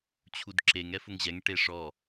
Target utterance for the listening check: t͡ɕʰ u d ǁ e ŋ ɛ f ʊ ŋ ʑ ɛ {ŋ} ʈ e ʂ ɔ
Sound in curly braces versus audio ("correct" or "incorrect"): correct